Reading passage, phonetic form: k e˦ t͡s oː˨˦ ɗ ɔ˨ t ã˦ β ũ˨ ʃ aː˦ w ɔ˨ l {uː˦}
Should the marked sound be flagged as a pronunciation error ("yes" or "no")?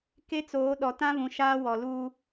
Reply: no